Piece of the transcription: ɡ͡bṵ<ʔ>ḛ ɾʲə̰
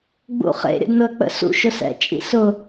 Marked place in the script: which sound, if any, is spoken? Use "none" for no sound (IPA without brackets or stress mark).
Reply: χ